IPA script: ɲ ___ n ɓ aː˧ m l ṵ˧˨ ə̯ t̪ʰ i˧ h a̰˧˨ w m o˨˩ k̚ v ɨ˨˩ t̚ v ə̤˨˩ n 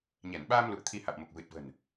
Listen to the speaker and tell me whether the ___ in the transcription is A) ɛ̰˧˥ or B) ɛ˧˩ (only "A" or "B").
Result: B